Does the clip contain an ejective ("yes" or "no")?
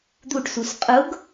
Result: yes